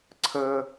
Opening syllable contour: high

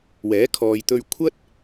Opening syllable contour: rising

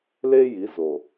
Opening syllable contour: high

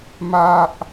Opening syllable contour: high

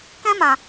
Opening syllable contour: high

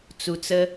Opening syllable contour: low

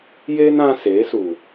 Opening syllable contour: high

